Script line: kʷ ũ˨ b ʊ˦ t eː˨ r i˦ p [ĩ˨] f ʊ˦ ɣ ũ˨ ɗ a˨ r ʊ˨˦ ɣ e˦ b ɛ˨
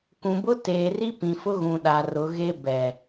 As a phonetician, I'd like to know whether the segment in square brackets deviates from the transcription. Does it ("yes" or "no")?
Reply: no